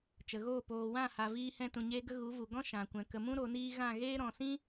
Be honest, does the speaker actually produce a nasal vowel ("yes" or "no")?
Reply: yes